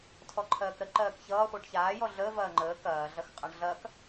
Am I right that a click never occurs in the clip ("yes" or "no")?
no